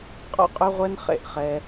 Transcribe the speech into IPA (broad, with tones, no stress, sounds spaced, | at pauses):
qʼ ɔ̰˦ qʼ ʉ˦ ʁʷ ɛ˦ n χ ḛ˦ ʔ χ ɛ˦